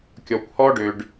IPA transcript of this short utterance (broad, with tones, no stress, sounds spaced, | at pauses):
kʲ ɔ˩ kʷ h ɔ˥ ɖ ø˩ ɖ